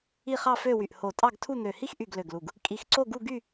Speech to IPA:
i˥˧ χ ɑ˥˧ f ø˥˧ w y˧˩ ʔ h o˧˩ tʼ ɑ˥˧ ɡ tʰ u˥˧ n̪ ø˧˩ h i˥˧ x ʔ y˧˩ ɡ l ø˧˩ ɡ l u˧˩ ɡ | kʼ i˧˩ x ǀ o˥˧ ɡ u˥˧ ɡ y˥˧

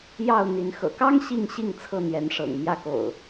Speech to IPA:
j ɑ˥˨ ʊ̯ n̪ i˨˦ n x ɤ̰˨˩ k ɑ˦ ŋ ɕ i˥˨ ŋ ɕ i˥˨ ŋ t͡sʰ ɤ˥˨ n̪ j ɛ˨˦ n ʂ ɤ̰˨˩ ŋ m j ä˥˨ k o̰˨˩ ʊ̯

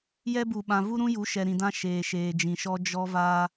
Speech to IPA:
j ɛ˦ b u˨ ɓ ã˨ v u˦ ɾ ũ˦ j u˨˦ ʃ ɛ˨ ɾ ĩ˨ d ã˦ ʃ eː˨ ʃ eː˨ d͡ʒ ĩ˨ ʃ ɔ˦ d͡ʒ ɔ˦ v aː˦

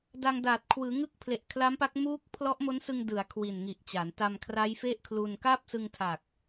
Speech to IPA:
d a˧ ŋ d aː˨˩ t̚ kʰ w ɯː˩˦ ŋ ɯ˦˥ k̚ pʰ l e˨˩ ʔ kʰ l a˦˥ m p a˦˥ k̚ m uː˦˥ k̚ pʰ l ɔ˦˥ ʔ m o˦˥ n s ɯ˧ ŋ d ɯ˩˦ a̯ kʰ w i˨˩ n ŋ i˨˩ ʔ t͡ɕ a˩˦ n t a˧ m kʰ r a˦˥ j f e˥˩ ʔ kʰ l u˧ n k aː˥˩ p̚ s ɯ˧ ŋ tʰ a˨˩ k̚

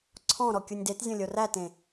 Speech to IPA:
ǀʰ ɔ̃ ɾ ɔ kʲ u nʲ d e t zʲ õ lʲ o r æ t ẽ

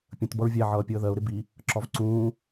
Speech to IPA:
pʲ ə̃ t b ʌ ɹ vʲ æ ʕ ʌː pʲ əː ð ɜ ʊ̯ ɾ ɪ b i | ǁ ɒ v ǀ ũː

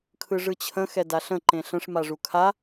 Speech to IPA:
kʰ ɯ ʐ ɯ t͡ɕʰ ə̃ x ɛ d a ɬ ə̃ ǃ ẽ ɬ ə̃ ʂ m a ʐ u kʰ a

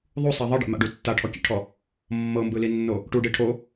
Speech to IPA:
ðˤ u sˤ i ðˤ ɯ ɖ ḛ m a̰ ɖ u tː a ʈʰ ɔ kʲ ḛ ʈʰ ɔ | mː ɤ m b ɯ l i nː o | ʈ u ɖ e ʈʰ o

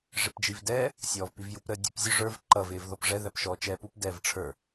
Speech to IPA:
ʐ ɪ p d͡ʒ i v d ɛː | sʲ ɔː v p i v j u p ɾ ə dʲ u p zʲ ʊ ʐ ə˞ v ǃ ʌ v ɪː v ð ɔ p ʐ ɛ ð æ p ʃ ɔː t͡ʃ ɛː p u p d ɛː v ʈ͡ʂʰ ə˞

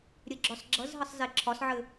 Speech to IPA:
ɾʲ ɘ ɡ͡ǁ ɒ s ɡ͡ǁ ʌ z ɦ ə sˤ z e ǁʰ ɒ s ʕ ɘ

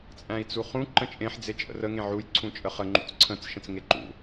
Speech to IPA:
t͡sʼ æ̃ i̯ t͡s u χ ũ ǃ ə̃ t͡ʃʼ ẽ ħ d͡z e t͡ʃʼ ə̰ r ə ŋ ẽ ʕ u j ǀʰ ũ t͡ʃʼ ə χ ə ŋ͡ǃ ṵ t͡s ǀʰ ə̃ t͡s ʃ ə̃ t͡s ŋ e ǃ ṵ

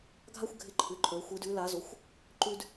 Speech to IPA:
ɡʱ a˦ xʷ ɡʱ ɪ˦ ǃʰ ʉ˨˦ ǃʰ ə˞˨˦ xʷ ɨ˨˦ d ʉ˨˦ l a˨˦ z o˨˦ xʷ | ǃ ʉ˦ d

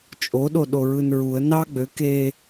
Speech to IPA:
t͡ʃʼ o ɗ o ɗ o ɹ ɯ n ɹ u ə̯ n ɑ ɡ͡b ø k e

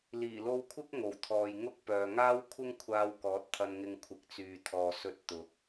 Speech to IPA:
l iː˨˩ l o˧ w kʷʰ ɪ˥ k̚ ŋ o˨˩ w t̪ʰ ɔː˨ j ŋ ʊ˥ k̚ p œː˨ ŋ aː˥ w kʷʰ ɪ˥ ŋ kʷʰ aː˧ w k ɔː˨˥ t̚ t̪ʰ ɐ˧ n ŋ ɪ˧ ŋ kʷʰ ɪ˨˥ k̚ t͡s yː˨ t̪ʰ ɔː˨ s ɵ˧ t̚ t̪ ʊ˨˥ k̚

